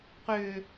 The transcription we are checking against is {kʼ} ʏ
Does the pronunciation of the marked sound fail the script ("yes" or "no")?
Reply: yes